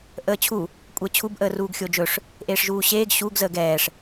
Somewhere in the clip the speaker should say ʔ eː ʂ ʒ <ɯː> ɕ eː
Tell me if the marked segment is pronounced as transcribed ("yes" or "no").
no